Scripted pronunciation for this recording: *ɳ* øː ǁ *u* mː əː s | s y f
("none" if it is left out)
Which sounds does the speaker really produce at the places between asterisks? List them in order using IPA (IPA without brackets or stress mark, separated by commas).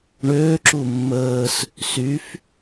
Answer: ɳ, u